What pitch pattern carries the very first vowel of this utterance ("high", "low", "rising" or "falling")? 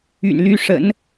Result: low